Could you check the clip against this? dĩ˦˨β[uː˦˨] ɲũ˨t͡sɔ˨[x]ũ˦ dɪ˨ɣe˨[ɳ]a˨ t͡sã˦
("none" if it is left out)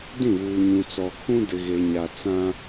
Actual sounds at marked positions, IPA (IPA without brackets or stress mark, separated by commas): uː˨, kʰ, ɲ